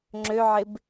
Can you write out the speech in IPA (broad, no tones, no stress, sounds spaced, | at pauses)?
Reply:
ŋ͡ǁ ø ʕ ɪ b